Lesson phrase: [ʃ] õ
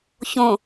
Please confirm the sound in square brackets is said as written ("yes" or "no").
no